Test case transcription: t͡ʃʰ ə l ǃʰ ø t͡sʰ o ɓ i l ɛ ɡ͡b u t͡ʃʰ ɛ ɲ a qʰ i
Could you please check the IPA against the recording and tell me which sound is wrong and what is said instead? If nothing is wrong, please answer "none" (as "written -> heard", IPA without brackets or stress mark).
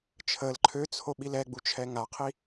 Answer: ɲ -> ŋ